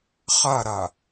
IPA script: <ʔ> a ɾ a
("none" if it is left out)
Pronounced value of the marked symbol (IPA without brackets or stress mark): χ